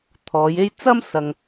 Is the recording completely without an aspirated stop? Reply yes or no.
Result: no